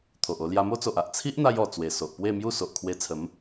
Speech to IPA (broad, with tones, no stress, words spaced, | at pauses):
t̪ʰo˨ʔo˧ lja˧mo˦t͡so˨ʔa˨ʔ t͡sʰi˦ʔn̪a˧j ɔ˨˩ t͡swe˨˩so˨ʔpwe˥˧mju˥˧ so˨ʔkʰwe˧t͡sʰə˨˦m